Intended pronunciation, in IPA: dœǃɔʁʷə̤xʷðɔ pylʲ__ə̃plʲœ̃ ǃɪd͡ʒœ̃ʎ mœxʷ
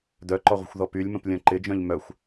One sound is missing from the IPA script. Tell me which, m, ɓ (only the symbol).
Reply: m